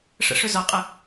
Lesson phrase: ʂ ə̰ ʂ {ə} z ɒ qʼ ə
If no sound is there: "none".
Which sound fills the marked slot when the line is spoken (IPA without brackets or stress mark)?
ʏ